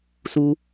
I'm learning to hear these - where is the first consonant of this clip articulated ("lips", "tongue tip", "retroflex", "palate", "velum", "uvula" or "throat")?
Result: tongue tip